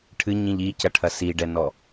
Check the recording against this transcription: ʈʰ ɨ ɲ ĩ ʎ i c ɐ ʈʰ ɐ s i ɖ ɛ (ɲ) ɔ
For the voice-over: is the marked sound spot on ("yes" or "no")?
no